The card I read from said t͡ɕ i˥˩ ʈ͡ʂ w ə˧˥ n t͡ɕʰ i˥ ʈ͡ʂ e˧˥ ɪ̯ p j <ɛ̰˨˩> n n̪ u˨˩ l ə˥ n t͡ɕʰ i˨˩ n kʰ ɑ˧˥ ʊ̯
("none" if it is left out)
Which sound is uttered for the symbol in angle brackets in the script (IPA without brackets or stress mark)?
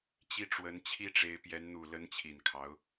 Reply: ɛ˧˥